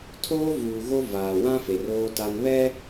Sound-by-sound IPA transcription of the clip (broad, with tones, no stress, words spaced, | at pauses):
tʰoː˦ vuː˨ ɣo˦ vaː˨wã˦fe˨r oː˦ta˦n βɛ˦